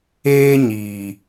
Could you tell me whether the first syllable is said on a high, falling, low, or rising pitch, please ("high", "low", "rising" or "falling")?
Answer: high